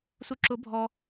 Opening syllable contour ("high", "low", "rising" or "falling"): low